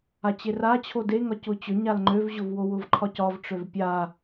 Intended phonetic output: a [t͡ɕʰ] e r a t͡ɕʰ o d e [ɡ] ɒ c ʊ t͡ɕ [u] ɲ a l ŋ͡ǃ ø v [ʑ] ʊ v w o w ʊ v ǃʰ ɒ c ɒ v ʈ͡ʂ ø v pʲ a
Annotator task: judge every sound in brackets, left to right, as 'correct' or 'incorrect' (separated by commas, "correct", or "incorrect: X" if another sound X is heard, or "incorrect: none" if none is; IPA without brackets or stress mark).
incorrect: t͡ɕ, incorrect: ŋ, incorrect: ø, correct